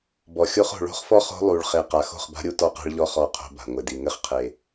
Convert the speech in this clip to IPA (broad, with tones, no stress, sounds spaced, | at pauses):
b ɔ˨ xʲ o˦ χ o̤˨ ɭ o̤˦ χ f ɔ˦ χ o̤˦ lˠ u˨ ɭ χ e˨ q a˨ x o̤˦˨ χ b a̤˦ ɾʲ u˦ t ɔ˦ q a̤˦ ɭ ʎ ɔ˦ χ ɔ˦˨ qʰ o̤˦ b a̤˨ ŋʷ ɘ˨ d i˨ ŋ ɘ˦ χ qʰ e˨